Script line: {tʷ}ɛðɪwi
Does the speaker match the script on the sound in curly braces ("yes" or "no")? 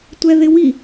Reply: yes